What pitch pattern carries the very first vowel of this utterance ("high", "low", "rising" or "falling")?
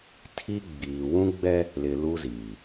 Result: high